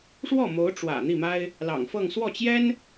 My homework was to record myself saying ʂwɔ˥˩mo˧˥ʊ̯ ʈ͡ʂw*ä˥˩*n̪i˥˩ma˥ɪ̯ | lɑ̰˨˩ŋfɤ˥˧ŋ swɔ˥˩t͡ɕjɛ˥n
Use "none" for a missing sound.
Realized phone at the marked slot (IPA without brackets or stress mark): ä̰˨˩